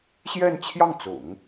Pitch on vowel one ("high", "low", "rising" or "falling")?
falling